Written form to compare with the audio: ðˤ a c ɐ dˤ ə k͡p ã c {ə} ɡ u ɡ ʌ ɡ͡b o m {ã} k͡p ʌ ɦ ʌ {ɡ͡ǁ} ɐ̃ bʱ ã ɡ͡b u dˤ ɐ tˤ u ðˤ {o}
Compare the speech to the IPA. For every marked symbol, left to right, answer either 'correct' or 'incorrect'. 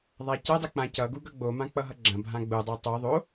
incorrect, correct, correct, correct

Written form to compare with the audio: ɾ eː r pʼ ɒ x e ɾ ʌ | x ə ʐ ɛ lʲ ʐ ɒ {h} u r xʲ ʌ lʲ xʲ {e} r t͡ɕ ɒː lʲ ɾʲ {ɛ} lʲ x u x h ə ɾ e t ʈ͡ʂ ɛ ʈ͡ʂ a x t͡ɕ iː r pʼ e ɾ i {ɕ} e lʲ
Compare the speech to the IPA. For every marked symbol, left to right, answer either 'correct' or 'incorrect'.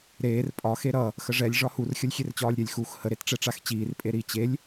correct, correct, correct, incorrect

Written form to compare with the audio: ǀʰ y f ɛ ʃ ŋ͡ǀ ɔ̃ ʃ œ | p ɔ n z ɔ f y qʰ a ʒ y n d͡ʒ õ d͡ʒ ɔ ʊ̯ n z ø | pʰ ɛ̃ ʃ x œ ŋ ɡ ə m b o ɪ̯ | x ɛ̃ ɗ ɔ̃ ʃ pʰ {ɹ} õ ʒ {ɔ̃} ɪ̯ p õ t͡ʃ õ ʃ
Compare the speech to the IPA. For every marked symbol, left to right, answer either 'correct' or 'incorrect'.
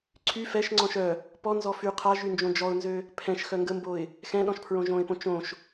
correct, incorrect

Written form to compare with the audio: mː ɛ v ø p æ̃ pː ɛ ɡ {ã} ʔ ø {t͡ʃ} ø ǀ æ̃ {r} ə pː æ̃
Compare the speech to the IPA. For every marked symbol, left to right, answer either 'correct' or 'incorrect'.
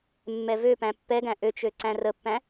incorrect, correct, correct

